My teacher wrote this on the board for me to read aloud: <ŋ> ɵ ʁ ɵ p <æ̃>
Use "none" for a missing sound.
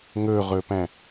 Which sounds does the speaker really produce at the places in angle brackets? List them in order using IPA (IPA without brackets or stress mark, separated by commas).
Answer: ŋ, æ̃